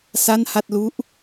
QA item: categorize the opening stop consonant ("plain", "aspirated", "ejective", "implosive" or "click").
plain